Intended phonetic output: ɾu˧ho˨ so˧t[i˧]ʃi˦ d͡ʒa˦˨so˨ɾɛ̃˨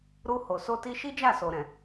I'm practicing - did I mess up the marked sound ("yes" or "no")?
no